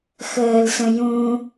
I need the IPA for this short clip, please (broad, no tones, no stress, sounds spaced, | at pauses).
x əː l s ə̃ j ũ